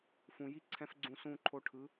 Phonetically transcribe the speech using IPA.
fũ˨ji˦ǀʰɛ̃˧f ɡ͡ǀũ˧sũ˦˨ǃʰo˧ʈʰɯ˨˦

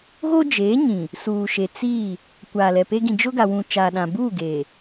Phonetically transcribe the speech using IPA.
ɣoː˦d͡ʒeː˨˦ɲĩ˨ | suː˨ʃe˨ t͡si˦˨ | kʷaː˨lɛ˨pe˦ ɡĩ˨d͡ʒʊ˦ɡa˨wũ˨ t͡ʃaː˨ɗã˨buː˦˨ɡeː˨

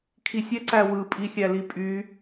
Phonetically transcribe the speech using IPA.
kʰisʲɛ ǀæwɯ pʼixʲælipʼy

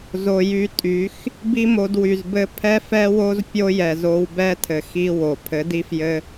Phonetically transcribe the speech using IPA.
zo˨ jy˧tʼy˨˦x | bi˦mo˧d wy˨zbɘ˧ pʰɛ˦fɛ˦wo˦z pʲo˦ jɛ˨zo˧wbɛ˦tʰɘ˨ xi˦wo˨ pʰɘ˨˦di˦fjɘ˦

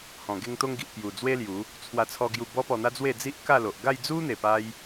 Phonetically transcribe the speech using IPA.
hɔ̃˨˩ɡe˧ŋt̪o˧ŋɡi˨ʔ pju˨˩ d͡zwe˦lju˨˦ | t͡sʰwa˧t͡sʰɔ˧ɡju˧ bɔ˦ pɔ˧n̪a˦d͡zwe˥˧ d͡zi˦ʔka˥˧lo˨ʔ ɡa˥˧jd͡zu˦n̪e˨˩pa˧j

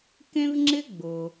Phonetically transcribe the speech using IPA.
kẽ˦vŋ͡ǁɪ˦ ɡ͡bʊ˩

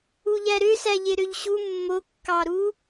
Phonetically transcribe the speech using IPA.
uʎæɾøsæ ʎeɾøʎɕu mːokːɑɾu

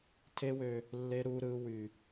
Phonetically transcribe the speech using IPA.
tʰe˦wø˦ | lːe˦ ɾuː˦ɾɯː˦ wy˦

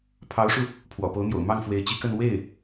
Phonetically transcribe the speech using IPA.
pʰɑ˧˥ʊ̯ʂu˧ | pʰwɔ̰˨˩po˧˥ʊ̯n̪jo̰˨˩ʊ̯ mɑ˥˩ŋfwe˧˥ɪ̯ t͡ɕi˧˥kə˥˧n we˥˩ɪ̯

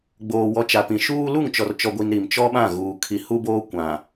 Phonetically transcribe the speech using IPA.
ɡ͡boː˨wɔ˨˦t͡ʃa˨pĩ˨ ʃuː˦ lu˦˨ŋt͡ʃɔ˨rt͡ʃɔ˨ɡʷi˨n ɾi˨mt͡ʃɔ˦ɓã˦˨ɣuː˨ kʰi˨hu˦boː˦ kʷã˨

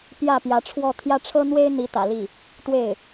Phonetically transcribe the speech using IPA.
pjä˥˩pjä˧˥ʈ͡ʂʰwɔ˥˧ t̪ʰjä˥˩ʈ͡ʂʰɤ˥n̪we˥ɪ̯ n̪i˧˥t̪ä̰˨˩li˥˩ | t̪we˥˩ɪ̯

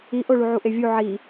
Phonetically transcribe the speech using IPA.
iʔoɭu ʕuʔevʲu ʕi

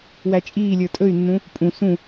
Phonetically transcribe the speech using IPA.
wæt͡ʃʼiːlʲə˞ tʼɵy̯nːũ | pʼũ sũ

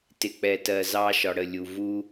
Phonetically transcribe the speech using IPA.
tɪ˨k͡pɛ˨ tɜ˨ zɑ˦ʃɒ˨ɽə˦˨lʲu˨ vu˦

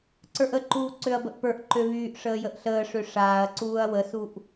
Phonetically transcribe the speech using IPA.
ǀə˞ʔəǃuː ǀøɐ̯bəʔpə˞ʔǃø βyːʔ ʂəːjəʔɬəːʂø ʂaːɐ̯ǀuːɐ̯ wəsuʔ

